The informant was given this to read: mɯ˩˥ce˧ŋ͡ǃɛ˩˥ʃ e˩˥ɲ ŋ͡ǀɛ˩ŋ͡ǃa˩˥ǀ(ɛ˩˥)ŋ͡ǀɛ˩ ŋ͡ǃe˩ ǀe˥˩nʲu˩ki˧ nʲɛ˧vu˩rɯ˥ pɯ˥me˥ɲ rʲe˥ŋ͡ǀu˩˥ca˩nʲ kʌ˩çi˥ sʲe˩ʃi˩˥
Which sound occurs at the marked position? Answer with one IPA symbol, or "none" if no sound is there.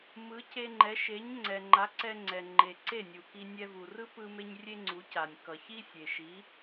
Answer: ɛ˧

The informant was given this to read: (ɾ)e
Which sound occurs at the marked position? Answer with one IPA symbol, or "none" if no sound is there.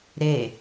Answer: ɾ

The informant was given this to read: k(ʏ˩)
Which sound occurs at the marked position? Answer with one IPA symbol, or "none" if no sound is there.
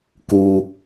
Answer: u˩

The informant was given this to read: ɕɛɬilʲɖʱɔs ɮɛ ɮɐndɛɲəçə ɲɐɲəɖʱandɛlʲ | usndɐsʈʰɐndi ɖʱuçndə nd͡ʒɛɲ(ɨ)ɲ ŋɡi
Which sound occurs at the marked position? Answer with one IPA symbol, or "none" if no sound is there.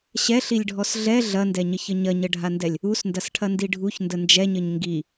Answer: ə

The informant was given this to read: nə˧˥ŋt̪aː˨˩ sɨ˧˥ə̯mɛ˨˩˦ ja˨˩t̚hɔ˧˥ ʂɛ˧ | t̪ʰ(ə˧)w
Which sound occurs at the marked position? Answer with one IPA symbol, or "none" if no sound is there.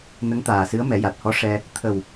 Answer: ə˨˩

